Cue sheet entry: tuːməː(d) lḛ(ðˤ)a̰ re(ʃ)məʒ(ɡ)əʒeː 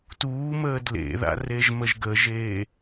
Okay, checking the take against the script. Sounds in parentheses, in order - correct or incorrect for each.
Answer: correct, incorrect: ð, incorrect: ʒ, correct

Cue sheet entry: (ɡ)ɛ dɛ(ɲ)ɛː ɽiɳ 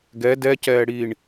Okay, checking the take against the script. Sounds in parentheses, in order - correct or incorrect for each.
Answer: correct, incorrect: c

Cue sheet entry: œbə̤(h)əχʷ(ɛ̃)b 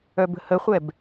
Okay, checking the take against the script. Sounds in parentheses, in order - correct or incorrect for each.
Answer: correct, incorrect: ɛ

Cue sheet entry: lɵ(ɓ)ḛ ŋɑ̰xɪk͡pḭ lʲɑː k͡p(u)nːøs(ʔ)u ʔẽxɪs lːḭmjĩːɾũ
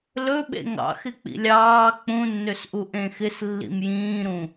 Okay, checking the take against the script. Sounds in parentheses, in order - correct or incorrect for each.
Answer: correct, incorrect: ũ, correct

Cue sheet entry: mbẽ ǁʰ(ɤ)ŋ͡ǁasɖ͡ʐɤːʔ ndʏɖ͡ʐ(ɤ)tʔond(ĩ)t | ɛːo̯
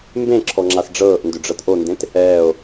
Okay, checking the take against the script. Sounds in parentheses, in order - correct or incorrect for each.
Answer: incorrect: ɔ, correct, incorrect: ẽ

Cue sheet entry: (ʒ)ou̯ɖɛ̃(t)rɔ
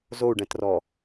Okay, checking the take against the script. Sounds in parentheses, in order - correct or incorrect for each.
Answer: incorrect: z, correct

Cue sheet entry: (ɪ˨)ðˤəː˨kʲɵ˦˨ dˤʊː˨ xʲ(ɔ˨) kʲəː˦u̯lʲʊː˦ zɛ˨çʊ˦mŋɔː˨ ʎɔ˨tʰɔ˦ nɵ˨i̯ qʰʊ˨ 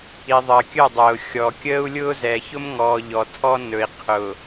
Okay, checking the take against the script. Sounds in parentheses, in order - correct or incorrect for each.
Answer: incorrect: i˨, correct

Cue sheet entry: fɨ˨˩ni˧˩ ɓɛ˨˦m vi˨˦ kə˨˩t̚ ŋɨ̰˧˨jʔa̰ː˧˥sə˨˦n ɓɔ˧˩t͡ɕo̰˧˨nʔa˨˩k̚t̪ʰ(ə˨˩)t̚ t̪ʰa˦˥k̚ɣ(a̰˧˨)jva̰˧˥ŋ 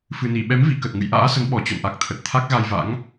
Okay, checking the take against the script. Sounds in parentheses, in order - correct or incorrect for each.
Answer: correct, incorrect: a˧

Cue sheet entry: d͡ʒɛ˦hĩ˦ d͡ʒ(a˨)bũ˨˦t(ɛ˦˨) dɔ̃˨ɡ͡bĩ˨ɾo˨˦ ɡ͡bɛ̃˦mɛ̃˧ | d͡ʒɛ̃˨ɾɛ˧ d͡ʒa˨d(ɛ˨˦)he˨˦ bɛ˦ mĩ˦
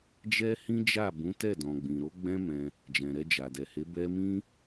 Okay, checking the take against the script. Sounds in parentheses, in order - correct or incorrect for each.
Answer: incorrect: a˦˨, correct, incorrect: ɛ˨

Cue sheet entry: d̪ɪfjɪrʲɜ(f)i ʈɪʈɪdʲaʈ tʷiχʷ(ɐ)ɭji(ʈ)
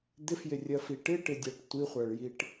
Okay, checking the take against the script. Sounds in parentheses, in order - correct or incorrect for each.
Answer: correct, incorrect: a, correct

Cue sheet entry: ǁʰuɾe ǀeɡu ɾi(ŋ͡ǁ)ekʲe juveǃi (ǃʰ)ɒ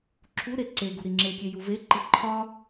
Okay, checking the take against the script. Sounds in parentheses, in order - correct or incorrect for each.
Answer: correct, correct

